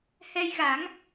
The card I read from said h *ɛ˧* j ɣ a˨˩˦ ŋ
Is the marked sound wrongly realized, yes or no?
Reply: no